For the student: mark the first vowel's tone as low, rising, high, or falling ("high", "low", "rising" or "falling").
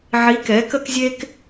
rising